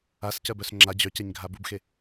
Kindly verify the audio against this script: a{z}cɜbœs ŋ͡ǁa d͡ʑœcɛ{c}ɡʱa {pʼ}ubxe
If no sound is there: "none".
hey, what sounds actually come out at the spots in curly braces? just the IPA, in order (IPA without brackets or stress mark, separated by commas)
s, ɲ, b